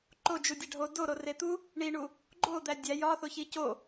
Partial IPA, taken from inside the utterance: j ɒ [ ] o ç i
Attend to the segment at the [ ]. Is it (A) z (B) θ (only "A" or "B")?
B